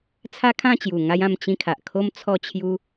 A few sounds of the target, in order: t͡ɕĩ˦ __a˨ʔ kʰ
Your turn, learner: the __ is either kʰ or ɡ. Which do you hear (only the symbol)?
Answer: kʰ